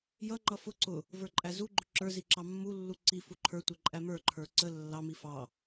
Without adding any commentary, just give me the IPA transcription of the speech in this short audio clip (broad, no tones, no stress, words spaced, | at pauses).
jʌŋ͡ǃʌ fʊ ǀʊ | və˞ǃʼæzuɡ͡ǃʊ ǁə˞zi ǁɑmːulːu ǀi fuǃʰə˞tʷɛ ǃʼæmə˞ǃʰə˞ ǀə lːɑmi fɑ